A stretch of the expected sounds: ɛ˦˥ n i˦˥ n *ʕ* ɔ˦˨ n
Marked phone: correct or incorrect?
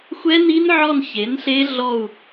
correct